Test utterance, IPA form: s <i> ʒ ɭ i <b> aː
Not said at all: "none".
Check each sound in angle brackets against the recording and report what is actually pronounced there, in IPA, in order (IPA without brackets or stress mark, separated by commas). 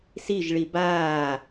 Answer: i, b